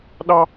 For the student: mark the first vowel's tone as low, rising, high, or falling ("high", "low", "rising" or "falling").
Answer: high